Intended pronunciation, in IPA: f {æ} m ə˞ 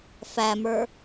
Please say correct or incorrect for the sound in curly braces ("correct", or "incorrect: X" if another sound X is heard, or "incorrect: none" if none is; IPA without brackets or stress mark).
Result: correct